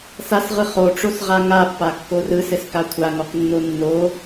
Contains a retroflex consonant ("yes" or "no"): yes